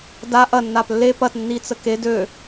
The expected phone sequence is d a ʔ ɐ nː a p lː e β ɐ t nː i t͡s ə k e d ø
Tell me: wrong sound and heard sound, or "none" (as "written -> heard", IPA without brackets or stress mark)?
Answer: β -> p